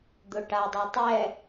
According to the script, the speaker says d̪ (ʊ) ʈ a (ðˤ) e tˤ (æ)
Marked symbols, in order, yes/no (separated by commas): yes, no, no